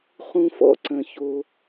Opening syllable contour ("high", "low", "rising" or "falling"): high